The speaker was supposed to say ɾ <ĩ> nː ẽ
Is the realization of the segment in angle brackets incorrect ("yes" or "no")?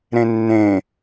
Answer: yes